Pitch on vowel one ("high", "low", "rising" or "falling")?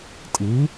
rising